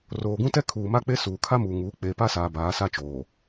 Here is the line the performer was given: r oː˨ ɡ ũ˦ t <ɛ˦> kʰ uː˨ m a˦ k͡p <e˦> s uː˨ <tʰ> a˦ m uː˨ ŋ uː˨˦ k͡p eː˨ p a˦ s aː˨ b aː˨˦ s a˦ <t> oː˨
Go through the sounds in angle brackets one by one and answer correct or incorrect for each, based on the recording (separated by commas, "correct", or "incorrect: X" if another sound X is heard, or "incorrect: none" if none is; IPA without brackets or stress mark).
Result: correct, correct, incorrect: kʰ, incorrect: t͡ʃ